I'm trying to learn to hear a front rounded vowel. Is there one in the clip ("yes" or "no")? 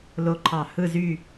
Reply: yes